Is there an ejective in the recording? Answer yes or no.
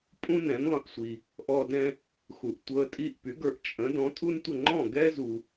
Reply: yes